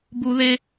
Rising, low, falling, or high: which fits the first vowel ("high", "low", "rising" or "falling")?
high